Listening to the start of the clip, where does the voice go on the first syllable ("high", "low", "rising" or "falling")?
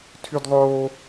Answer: high